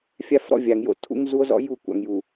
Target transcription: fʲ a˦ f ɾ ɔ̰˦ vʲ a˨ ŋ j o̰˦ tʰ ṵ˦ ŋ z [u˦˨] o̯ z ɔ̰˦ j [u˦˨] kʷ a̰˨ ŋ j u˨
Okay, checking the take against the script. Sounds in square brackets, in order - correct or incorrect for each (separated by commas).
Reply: incorrect, correct